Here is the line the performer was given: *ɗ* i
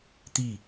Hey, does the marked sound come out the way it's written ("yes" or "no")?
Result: no